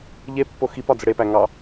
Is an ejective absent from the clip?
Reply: yes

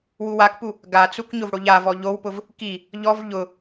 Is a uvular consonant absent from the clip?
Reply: yes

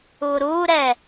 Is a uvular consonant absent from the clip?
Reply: yes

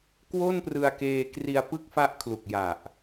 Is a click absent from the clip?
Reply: yes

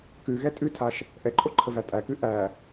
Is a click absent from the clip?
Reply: no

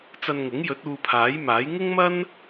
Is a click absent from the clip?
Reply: yes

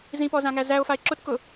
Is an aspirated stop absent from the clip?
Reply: yes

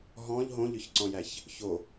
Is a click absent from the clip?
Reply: no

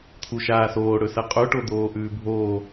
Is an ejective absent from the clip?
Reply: no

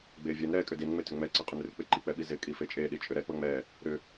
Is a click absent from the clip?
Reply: no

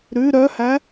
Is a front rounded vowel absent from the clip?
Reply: no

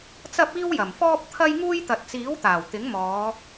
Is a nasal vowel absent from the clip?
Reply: yes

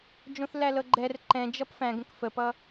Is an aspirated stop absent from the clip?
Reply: yes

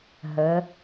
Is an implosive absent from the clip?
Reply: yes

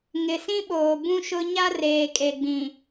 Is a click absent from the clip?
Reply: yes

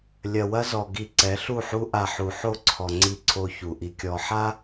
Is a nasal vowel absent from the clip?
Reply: yes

